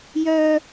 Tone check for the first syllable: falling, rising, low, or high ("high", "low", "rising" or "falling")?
low